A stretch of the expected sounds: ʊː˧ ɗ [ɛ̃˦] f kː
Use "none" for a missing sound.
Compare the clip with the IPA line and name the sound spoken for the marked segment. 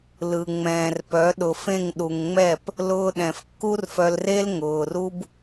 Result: ɛ̃˨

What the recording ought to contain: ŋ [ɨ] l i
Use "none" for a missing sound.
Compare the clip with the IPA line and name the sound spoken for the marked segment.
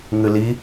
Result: ɨ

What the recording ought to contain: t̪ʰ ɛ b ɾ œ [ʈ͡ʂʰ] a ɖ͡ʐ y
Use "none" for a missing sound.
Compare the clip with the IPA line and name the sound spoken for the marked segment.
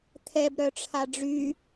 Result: ʈ͡ʂʰ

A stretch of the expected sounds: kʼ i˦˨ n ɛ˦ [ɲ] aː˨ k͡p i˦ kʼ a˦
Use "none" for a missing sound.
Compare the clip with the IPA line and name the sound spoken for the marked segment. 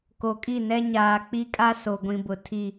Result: ɲ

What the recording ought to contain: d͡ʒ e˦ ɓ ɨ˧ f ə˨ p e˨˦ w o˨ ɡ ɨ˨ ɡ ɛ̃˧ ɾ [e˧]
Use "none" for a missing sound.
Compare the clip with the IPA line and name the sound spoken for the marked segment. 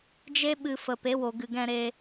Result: e˧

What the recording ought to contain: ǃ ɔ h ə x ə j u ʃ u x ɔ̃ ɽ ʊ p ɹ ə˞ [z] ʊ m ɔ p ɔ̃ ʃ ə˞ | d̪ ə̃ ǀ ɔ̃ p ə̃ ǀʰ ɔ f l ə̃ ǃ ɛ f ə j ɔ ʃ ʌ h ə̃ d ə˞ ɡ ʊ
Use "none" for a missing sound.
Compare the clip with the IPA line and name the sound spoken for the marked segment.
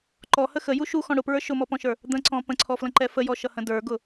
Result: ʃ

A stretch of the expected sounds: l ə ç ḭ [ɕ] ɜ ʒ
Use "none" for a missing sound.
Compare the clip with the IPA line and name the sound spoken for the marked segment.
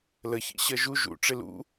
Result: ɕ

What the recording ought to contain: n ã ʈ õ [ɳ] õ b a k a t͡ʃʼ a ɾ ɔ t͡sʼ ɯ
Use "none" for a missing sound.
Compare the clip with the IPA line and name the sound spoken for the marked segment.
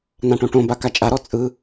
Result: ʈ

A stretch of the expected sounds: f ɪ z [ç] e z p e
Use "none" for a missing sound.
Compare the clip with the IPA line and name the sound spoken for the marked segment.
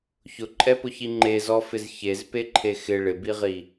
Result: ç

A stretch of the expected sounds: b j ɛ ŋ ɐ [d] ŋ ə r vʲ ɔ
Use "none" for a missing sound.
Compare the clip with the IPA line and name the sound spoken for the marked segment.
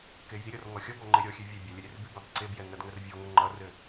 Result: d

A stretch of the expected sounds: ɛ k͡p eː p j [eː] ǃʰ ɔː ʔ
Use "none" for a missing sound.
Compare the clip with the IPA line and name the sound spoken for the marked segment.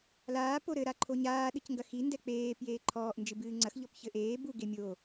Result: eː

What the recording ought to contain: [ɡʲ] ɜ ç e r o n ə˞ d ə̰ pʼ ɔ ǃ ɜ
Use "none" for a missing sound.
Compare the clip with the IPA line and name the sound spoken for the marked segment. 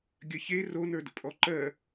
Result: ɡʲ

